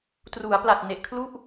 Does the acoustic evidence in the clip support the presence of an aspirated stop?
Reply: yes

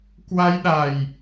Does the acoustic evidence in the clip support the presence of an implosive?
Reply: yes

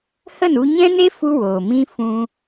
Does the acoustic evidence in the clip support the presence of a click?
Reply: no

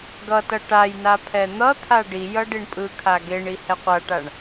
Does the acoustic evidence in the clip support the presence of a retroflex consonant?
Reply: yes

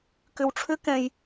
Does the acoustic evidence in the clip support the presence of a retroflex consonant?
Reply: yes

